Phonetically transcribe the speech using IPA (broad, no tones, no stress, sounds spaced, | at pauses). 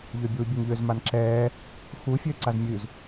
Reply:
ʎ ø bʲ uː bʲ ʉ ŋ ʎ ø z m a n ǁ ɛː | x u fʲ øː ǀ a z mʲ ʉ z